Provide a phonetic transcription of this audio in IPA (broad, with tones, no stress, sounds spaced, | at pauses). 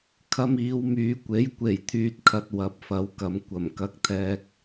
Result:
kʰ ɐ˧ m iː˨˧ w m yː˨˧ kʷ e˨˥ j kʷ e˨˩ j t̪ʰ yː˨ t̚ kʰ ɐ˨ t̚ w ɐ˨˥ p̚ f ɐ˨˧ w k ɐ˨˧ m kʷ ɐ˨˩ m k ɐ˧ k̚ t̪ʰ ɛː˧ k̚